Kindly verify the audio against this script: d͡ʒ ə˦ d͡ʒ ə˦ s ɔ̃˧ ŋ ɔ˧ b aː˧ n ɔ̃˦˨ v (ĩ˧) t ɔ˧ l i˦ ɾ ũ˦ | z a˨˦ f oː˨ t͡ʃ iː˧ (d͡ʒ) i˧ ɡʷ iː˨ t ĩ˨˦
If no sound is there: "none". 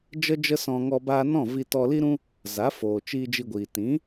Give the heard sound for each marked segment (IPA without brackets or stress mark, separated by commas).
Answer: i˧, d͡ʒ